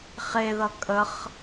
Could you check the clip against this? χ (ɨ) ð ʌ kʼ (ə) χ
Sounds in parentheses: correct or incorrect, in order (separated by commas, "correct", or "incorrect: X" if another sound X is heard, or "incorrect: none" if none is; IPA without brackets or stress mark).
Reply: incorrect: e, correct